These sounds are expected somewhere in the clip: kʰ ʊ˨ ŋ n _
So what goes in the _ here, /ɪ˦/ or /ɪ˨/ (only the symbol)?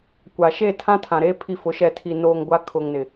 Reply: ɪ˨